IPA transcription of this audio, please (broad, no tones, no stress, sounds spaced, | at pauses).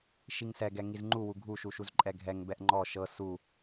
ʃ i ŋ s ɛ ɡ ɛ ŋ i z ŋ͡ǃ u w u ɡʱ u ʃ u ʃ u z ǃʼ ɛ ɡʱ ɛ ŋ b ɛ ʔ ŋ͡ǃ ɔ ʃ ɤ s u